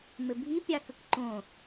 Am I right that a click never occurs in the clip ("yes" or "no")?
no